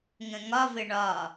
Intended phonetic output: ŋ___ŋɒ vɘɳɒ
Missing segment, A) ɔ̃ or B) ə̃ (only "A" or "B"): B